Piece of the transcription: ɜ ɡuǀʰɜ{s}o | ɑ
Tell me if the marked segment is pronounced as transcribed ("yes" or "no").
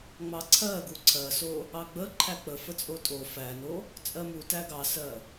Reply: yes